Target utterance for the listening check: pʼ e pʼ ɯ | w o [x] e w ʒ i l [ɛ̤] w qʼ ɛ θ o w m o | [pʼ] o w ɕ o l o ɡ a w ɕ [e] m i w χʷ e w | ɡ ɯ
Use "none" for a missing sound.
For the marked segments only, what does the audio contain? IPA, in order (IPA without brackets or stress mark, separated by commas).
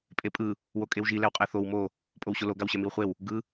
kʼ, ɛ, pʼ, ɛ